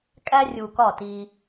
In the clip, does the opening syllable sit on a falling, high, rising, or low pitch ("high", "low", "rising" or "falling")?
high